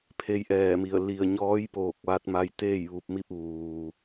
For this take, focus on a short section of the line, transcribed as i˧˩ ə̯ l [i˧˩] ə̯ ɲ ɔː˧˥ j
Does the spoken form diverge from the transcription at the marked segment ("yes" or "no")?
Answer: no